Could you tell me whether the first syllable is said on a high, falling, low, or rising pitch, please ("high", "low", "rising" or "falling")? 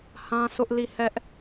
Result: high